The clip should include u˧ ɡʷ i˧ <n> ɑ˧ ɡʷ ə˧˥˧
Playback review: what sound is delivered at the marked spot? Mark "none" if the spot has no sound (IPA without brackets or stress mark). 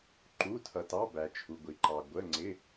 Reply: ǃ